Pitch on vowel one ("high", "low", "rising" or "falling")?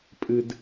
low